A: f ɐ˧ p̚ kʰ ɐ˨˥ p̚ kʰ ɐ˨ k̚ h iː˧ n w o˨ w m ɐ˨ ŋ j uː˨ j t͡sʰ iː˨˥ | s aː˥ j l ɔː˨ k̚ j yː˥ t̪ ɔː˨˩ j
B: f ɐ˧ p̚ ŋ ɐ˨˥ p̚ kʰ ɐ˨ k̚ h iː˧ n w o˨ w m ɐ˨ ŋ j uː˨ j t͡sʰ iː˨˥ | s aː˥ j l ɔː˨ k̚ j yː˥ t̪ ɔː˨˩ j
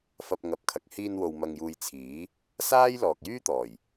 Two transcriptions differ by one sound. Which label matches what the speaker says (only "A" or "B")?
B